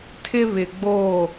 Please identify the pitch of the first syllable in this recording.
high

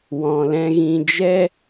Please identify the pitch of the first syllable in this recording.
low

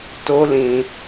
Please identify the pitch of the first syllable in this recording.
high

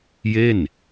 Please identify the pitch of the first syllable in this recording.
falling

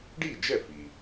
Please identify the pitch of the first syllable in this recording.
falling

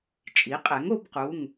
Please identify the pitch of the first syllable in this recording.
rising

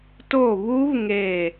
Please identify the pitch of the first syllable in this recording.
falling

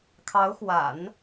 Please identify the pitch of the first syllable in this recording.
rising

